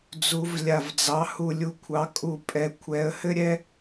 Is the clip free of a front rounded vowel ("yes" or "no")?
yes